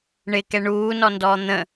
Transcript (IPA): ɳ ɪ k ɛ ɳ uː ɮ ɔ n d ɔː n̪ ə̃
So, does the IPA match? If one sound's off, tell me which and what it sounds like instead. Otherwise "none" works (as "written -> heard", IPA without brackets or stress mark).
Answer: ɮ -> n